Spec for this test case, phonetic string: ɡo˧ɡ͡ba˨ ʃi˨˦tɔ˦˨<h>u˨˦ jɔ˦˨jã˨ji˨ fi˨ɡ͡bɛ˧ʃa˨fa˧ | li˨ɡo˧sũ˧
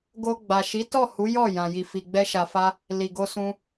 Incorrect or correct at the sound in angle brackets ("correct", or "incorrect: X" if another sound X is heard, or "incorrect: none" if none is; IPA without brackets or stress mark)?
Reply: correct